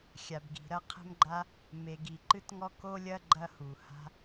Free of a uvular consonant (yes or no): no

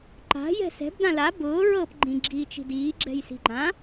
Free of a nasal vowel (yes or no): no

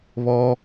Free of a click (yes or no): yes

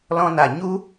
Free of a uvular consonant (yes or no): yes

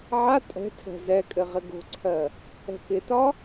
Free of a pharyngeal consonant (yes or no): no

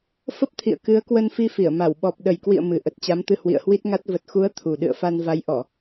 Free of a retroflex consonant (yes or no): yes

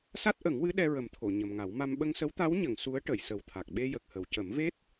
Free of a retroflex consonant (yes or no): no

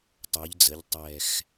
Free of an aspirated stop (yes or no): yes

